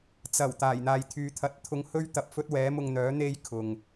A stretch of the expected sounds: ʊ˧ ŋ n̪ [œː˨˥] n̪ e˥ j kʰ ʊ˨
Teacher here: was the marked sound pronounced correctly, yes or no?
yes